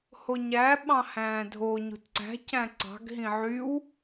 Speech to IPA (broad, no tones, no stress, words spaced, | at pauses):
hoɲæ ɓɑ̃hæ̃ːdʱo ɲo̤tǀæ̤ cæ̃ǀɑ̤ɡ ɦĩʕyw